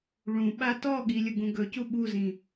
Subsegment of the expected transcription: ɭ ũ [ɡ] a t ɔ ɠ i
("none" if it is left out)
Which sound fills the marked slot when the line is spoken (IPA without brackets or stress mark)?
ɓ